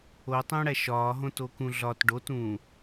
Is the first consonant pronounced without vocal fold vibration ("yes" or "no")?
yes